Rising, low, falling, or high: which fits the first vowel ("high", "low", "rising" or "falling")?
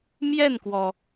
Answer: falling